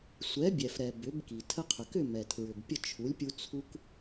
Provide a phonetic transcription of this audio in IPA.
sʷ ɛ˩˥ bʲ ɛ˩ f ɾ ɛ˩ b ʏ˩˥ b k i˩ tʰ ə˧ qʰ ʏ˩ k ʏ˥˩ m ɛ˩ tʰ ɹ ʏ˩ b pʲ ə˥˩ t͡ʃʰ u˩˥ lʲ pʲ u˧ t͡sʰ u˥ k

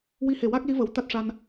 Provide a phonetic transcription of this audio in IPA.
w i˧˥ h e˨˩ w a˦˥ k̚ l i˧˥ v ə˨˩ w t̪ a˦˥ t̚ ʂ a˧ n

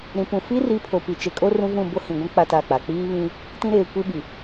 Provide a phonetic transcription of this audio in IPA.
ɾ ĩ˨ p ũ˨ f i˦ r i˨˦ pʰ o˨ p i˨ t͡ʃ e˨ kʼ o˦ r ũ˦ v ũ˦˨ b o˦ h ĩ˨ ɡʷ ũ˦ k͡p a˦ t a˦˨ k͡p a˨ k͡p iː˦ β ĩ˦ | t ĩ˦ ɾ eː˨ kʷ i˦ ɓ i˨

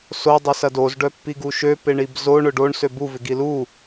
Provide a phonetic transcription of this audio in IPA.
s o dˤ ʊ s ɐ d o z ɖ œ pː i ɡ u ʃ ø p ɪ ɳ i b z o ɳ ʊ ɖ o ɳ s ø b u v ɪ ɡ i l u

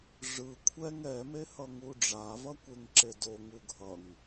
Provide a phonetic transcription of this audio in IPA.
ʐ ɯ kʷʰ ɛ ŋ ɛ m e h ʌ ŋ u ɖ͡ʐ a v ʌ kʷ e ŋ ǁ e d o ŋ u ɡʱ ʌ ŋ

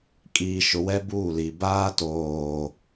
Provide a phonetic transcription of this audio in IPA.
kʼ iː˨ ʃ ʊ˨ w ɛ˦ b uː˦˨ l i˨ b aː˦ t oː˨

